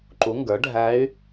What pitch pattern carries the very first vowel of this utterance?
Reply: rising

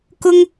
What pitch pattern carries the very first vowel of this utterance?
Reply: high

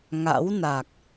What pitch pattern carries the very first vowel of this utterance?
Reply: rising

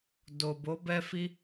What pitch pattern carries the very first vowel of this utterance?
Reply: low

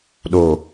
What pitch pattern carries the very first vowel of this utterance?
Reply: low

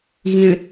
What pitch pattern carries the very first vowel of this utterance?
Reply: low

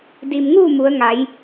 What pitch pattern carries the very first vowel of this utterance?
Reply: low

